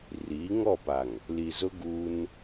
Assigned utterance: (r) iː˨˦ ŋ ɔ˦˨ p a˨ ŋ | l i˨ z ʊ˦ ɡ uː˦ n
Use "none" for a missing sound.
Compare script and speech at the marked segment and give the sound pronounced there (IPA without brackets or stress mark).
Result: r